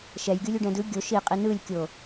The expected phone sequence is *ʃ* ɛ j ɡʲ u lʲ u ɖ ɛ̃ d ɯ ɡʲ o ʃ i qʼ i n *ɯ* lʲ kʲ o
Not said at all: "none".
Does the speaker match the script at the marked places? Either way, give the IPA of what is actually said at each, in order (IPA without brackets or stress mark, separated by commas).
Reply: ʃ, ɯ